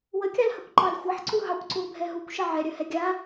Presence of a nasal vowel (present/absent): absent